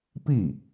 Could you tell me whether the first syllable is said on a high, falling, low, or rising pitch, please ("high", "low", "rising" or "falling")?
falling